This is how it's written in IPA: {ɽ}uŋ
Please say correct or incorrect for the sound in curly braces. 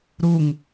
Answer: incorrect